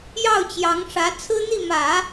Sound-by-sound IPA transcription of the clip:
jɑ˥˩ʊ̯t͡ɕjɑ˧˥ŋʂä˧˥ t͡sʰɹ̩˥n̪i˥˩mä˨˩˦

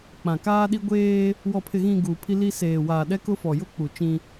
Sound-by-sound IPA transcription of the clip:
k͡pã˨kaː˦ɗi˦ ɡʷeː˦ | wɔ˨pʰɪ˨ɣĩ˨ ɡuː˨pʰi˦li˦ seː˨waː˨ɗɛ˦ kʊ˦fɔ˨ jʊ˦k͡pu˨ t͡ʃĩ˦

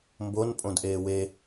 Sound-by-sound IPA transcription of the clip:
mbon pʼõdʔeːwe

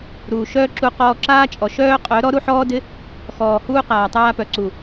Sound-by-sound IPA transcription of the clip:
ɾuː˨ʃœː˦ǁu˧ qɔː˧ǁaː˦t͡ʃʼɔ˨ ʃœː˦ qʼœ˨˦ ɾɔ˦ɾu˦ħɔː˦dɪ˦ | xɔː˨huː˧ qaː˨tˤaː˧pœ˨ ǀu˨

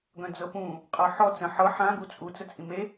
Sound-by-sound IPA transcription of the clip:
ɡœ̃d͡zɤpũ | qʼɤħɔ t͡sə̃ ħɤ ħã ɡut͡sʼu t͡sət͡sʼĩme

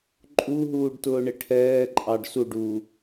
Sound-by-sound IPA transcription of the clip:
ǃʼuɦuːɖtʊːɳɪ ʈʰɛːǃʼɑɖ suɖuː

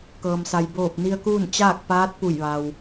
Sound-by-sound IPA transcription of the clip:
kɤː˩msa˩j boː˧˩p̚ni˧ə̯kuː˥˨n t͡ɕaː˥˨k̚paː˧˥t̚pu˧˩jʋa˩w

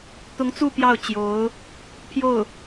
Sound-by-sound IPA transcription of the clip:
t̪ʊ˧˥ŋt͡su˥˧ pjɑ˥˩ʊ̯t͡ɕjo˧˥ʊ̯ | pʰjo˥˩ʊ̯

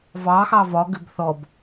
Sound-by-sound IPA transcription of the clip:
vɑxɑ vɒ ɡʏbθɔb

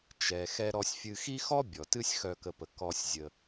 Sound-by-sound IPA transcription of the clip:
t͡ʃɛ˩ xɛ˨ɾɔ˨sʲfʲɨ˨xi˥ xɔ˥bʲɔ˩ tɨ˦sʲxœ˨kə˨pə˩ kɔ˨sʲzʲə˨

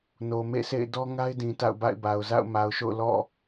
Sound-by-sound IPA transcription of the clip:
no˨mḛ˦˨sḛ˦˨ɪ̯ dɔ˦ŋa˦ɪ̯dĩ˨ ta̰˦˨ʊ̯ba̰˦˨ɪ̯ba˨ʊ̯ za̰˦˨ʊ̯ma˨ʊ̯ʃo̰˦˨ʊ̯ lɔ̰˦˨

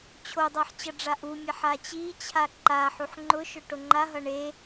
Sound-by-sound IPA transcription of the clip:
t͡ɕʰodˤaħ t͡ɕʌɖ͡ʐaʔumʲaħ at͡ɕit͡ɕʰa ǃaħuħ ŋ͡ǃʊʃʊ ʈoŋ͡ǃaɦʌ ɳe

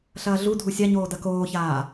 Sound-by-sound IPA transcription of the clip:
ɬɐːɮu dʱusʲaɲoː dɐkoːçaː

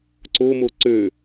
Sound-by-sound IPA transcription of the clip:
ǀomo ǀø

